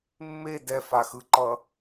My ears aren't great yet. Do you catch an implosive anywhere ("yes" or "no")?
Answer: no